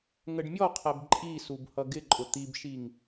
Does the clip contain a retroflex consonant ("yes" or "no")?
yes